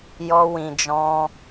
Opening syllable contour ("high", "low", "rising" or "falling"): high